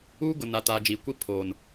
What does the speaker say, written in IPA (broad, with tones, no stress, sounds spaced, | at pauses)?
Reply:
uː˦ ɡ ʊ˨ n a˨ t a˨ d͡ʒ iː˨ kʷ i˦˨ pʰ oː˨ n